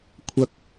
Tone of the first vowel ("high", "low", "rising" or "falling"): low